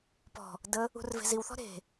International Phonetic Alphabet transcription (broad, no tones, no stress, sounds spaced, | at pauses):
p ɔ̤ | d ə | ṳ r v e̤ z i w θ ɔ̤ ɾ e̤